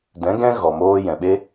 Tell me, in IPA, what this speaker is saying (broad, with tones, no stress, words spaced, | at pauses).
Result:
dɛ̃˨˦ ɡɛ̃˦ ɣɔ˨moː˦ jɛ̃˨ɓe˦